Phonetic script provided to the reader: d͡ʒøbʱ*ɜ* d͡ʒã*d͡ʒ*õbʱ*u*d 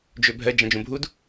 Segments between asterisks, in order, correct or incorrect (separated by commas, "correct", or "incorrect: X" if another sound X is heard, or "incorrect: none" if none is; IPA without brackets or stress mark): correct, correct, correct